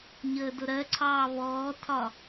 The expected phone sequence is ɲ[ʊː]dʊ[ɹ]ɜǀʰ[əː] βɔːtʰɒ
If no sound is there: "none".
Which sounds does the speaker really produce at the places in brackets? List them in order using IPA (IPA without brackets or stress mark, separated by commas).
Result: əː, ɾ, ɑː